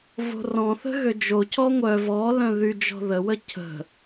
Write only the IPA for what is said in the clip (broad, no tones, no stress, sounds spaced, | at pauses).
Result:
v o̤ r ɔ̃ θ ə̤ ɣ ø d͡ʒ o cʰ ɔ ŋʷ œ v ɔ l œ̃ ð y d͡ʒ ɔ̤ ð ə w ə cʰ ə̤